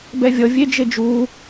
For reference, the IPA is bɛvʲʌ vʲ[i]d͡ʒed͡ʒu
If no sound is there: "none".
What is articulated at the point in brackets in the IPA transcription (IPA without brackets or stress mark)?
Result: e